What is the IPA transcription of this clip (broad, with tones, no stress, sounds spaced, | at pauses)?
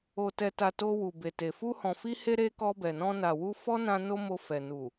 o˨ t ɛ˨ t a˨ t o˧ w u˨ b e˨ t e˨ f u˧ h ɔ̃˨ f i˧ h e˧ ɾ e˧ k ɔ˧ b ɛ˨ n ɔ̃˧ n a˨ w u˧ f ɔ˦ n ã˧ n o˦ m o˧ f ɛ˨ n u˨